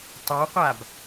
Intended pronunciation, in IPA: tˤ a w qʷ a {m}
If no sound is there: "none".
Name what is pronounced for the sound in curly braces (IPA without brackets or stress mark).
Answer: b